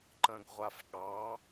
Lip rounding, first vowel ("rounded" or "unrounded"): unrounded